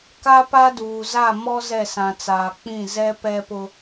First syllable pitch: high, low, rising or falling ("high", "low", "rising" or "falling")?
high